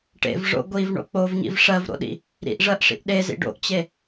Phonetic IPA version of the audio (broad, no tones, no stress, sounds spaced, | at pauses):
ʈ ḛ v ʐ o̰ ɡʷ i v ɳ o̰ k͡p o v ɲ ḭ v ʂ ɜ v ɾ o̰ ɗ ḭ | ɾ ḭ ʔ ʐ ɜ ʔ ʂ ḭ ʔ ɗ e z ḭ ɖ o̰ ʔ t͡ɕ e